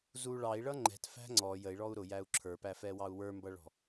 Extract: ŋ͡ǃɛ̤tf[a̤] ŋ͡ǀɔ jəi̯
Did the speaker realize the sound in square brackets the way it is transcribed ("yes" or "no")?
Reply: no